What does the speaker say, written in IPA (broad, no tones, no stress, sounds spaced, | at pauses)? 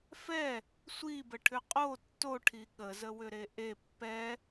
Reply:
f ɛ | sʷ i b ə ʈʰ ʏ qʼ o tː o ʈʰ i ɠ ə z ə w ʏ ɾ e ʔ e pː ɛ